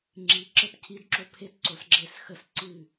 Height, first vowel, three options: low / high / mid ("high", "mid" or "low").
high